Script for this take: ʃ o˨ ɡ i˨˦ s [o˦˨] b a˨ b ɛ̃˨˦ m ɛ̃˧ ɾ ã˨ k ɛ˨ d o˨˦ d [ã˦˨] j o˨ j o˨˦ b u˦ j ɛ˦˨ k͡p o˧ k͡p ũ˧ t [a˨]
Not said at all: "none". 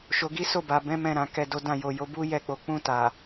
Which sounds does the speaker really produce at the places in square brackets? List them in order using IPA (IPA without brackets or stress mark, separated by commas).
o˦˨, ã˦˨, a˨